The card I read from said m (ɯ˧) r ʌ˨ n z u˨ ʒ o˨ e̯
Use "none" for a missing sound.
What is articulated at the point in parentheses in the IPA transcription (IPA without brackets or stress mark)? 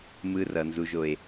ɯ˧